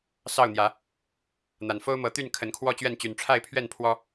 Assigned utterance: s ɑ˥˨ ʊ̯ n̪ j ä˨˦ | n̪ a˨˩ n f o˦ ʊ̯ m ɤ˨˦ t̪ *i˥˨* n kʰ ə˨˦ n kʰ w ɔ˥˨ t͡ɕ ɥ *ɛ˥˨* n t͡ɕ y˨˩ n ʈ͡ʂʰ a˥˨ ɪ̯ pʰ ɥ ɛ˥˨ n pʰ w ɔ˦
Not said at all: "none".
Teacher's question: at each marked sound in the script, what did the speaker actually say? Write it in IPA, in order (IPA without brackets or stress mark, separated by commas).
y˥˨, ɛ˥˨